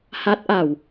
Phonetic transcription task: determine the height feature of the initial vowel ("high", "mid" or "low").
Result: low